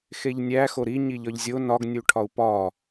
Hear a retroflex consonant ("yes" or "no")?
yes